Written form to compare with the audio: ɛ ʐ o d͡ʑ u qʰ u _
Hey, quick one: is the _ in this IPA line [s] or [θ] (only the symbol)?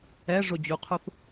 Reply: θ